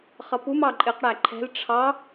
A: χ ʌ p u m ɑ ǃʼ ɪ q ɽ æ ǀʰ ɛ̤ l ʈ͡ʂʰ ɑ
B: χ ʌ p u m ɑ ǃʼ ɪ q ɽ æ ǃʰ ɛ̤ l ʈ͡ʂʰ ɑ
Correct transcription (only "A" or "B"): B